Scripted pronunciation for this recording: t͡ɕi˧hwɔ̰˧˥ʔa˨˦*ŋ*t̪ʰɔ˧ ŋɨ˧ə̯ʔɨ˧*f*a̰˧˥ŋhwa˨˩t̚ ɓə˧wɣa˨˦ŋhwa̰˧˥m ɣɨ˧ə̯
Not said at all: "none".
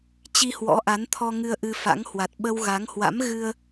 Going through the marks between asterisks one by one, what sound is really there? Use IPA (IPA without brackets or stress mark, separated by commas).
n, f